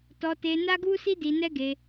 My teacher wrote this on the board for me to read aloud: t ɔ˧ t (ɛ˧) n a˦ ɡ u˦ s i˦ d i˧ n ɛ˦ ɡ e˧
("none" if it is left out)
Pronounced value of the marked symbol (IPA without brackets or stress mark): e˧